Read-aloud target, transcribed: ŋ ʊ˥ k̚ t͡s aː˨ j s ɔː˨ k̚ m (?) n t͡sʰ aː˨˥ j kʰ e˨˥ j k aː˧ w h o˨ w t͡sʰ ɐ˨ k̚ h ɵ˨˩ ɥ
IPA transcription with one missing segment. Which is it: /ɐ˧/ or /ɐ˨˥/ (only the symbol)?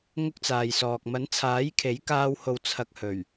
ɐ˨˥